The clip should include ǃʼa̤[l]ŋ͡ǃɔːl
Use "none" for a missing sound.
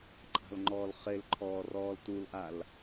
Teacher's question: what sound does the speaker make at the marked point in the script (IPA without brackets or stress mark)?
l